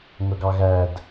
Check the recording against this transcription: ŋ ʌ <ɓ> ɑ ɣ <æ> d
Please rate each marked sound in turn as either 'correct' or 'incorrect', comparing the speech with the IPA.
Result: incorrect: ɡ, correct

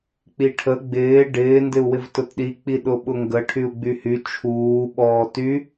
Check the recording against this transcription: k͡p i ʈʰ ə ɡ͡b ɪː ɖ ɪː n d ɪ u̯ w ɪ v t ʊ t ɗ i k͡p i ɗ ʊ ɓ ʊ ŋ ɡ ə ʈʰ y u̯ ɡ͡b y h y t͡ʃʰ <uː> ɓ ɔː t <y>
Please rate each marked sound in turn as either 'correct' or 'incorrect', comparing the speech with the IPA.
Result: correct, correct

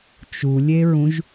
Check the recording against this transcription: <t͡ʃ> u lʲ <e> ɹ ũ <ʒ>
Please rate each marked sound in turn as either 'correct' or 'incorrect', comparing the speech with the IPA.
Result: correct, correct, correct

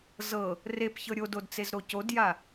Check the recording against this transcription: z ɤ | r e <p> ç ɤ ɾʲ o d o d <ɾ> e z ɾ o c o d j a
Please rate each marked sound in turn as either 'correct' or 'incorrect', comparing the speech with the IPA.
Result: correct, incorrect: t͡s

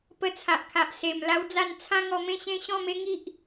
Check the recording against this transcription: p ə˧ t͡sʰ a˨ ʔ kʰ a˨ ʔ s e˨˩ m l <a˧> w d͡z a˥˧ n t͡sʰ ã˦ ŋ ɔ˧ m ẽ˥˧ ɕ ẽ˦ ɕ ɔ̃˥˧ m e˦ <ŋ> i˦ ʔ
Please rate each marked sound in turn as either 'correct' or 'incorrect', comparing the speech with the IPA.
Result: incorrect: a˦, correct

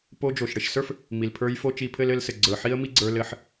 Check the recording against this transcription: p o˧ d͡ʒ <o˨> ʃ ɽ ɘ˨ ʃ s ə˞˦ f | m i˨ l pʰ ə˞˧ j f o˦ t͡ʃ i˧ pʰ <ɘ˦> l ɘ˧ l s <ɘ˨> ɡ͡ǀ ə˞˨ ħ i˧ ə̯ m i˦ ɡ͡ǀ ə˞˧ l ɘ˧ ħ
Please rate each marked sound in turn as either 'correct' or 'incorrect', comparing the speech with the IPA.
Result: correct, correct, correct

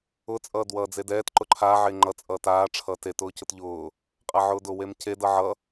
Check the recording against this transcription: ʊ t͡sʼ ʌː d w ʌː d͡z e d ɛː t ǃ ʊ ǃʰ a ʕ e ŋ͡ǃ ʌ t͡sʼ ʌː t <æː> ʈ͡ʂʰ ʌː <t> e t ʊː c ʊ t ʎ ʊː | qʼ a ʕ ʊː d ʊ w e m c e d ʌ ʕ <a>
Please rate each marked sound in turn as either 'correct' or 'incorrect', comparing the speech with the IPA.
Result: incorrect: aː, correct, incorrect: ʌ

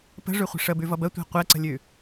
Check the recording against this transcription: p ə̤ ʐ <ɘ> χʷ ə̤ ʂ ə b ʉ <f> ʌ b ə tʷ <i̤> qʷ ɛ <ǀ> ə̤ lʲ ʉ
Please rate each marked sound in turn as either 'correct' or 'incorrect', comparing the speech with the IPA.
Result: incorrect: ʉ, incorrect: v, correct, correct

